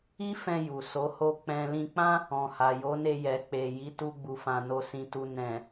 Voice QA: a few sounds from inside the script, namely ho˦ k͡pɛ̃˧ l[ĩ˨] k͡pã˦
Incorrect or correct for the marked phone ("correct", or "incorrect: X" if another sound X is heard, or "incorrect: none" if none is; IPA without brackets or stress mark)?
incorrect: ĩ˧